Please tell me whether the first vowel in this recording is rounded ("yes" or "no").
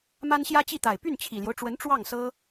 no